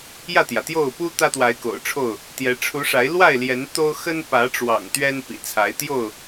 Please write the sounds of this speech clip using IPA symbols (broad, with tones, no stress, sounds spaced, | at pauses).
j ä˥˨ t̪ j ä˩ t̪ j o˥˨ ʊ̯ p u˦ t̪ ä˦ t̪ w a˨˦ ɪ̯ k o̰˨˩ ʊ̯ ʈ͡ʂʰ o˥˨ ʊ̯ | t̪ j ɛ˨˦ ʈ͡ʂʰ u˨˦ ʂ a˨˦ ɪ̯ l w a˥˨ ɪ̯ l j ɛ˨˦ n t̪ o˦ ʊ̯ x ə˦ n p ä˨˦ ʈ͡ʂ w ɑ̰˨˩ ŋ t̪ ɥ ɛ˦ n p ḭ˨˩ t͡sʰ a˨˦ ɪ̯ t̪ j o˥˨ ʊ̯